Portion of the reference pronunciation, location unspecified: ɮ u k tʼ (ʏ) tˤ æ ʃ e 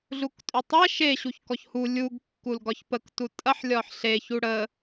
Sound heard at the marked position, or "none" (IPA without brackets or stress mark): ʏ